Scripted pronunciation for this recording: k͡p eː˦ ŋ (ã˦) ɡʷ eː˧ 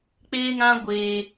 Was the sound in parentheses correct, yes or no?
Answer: yes